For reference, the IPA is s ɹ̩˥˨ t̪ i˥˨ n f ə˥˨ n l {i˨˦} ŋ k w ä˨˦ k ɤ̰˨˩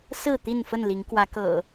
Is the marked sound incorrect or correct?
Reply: correct